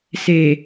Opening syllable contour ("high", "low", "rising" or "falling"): low